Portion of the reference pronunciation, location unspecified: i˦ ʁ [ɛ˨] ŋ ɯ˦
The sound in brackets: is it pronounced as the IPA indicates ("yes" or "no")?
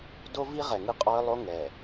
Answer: yes